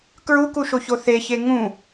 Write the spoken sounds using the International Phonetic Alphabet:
kɹukuʃoço θeçe ŋũ

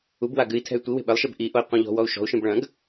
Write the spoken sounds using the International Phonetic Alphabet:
ubwa ɡɨi̯tʰɛ̤y̯ tʷiwe̤ ɓɘlˠʃeb ʔiʔoi̯ qʷĩʎɔ̤wɔu̯ ʃɔ̤u̯ʃĩb ɭɐ̃ɡ

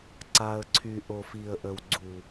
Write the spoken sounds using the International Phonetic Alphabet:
ǀa˨ə̯ǀʰy˨ ʔo˨fi˨ə̯ʔə˨w ɡ͡ǀu˨

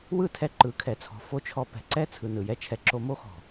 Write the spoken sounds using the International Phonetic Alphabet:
wɯ˦˨tʰɛ˧ǃɯ˨˦ kʰɛ˨t͡sʰɔ̤˨ fo˦t͡ʃʰɔ˧ pɛ̤˨ǀɛ˦ t͡sʰɯ˨ nɯ˨jɛ˦t͡ʃʰɛ˧ ǁo˧mo˦xɔ̤˨

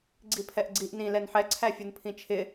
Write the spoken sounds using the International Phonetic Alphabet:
ɡ͡ǀipʰɛʔɡ͡ǀiʔ nĩ lɛnħɛ ǀʰæfʲunpʰĩt͡ʃʰɪ

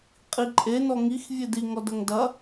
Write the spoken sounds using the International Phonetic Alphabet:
qʼiǃʼe nɔŋix vʲedi ŋɔdɐŋdɐ

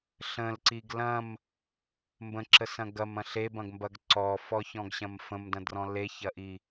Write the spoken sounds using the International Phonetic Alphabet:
ɬə̃lǀiɡ lɐ̃m | mbə̃ǁəsɐ̃ ɡɐmɐ̃ ɬebɐ̃ɡmbɐɡ ǀɔfɔçɔ̃ɡɕɐ̃m fə̃mdɐ̃drɔ̃ leçɐʔi

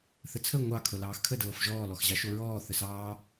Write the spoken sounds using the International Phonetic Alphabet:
θət͡sʰə ŋʷɑ kʰɤlɑːxkʰə dɤːfʒɔː lɔxʑɑʃoɹɔː θəsɑː

